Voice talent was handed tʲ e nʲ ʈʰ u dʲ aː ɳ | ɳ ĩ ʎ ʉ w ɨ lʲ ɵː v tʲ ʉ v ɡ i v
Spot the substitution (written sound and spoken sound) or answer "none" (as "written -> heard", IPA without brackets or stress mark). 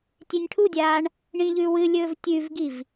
none